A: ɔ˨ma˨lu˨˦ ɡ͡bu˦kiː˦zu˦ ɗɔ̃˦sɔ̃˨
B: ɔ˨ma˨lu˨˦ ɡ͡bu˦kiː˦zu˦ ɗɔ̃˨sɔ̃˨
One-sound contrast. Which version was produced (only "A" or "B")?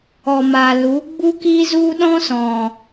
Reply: A